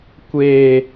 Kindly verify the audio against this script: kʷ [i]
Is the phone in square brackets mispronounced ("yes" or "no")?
yes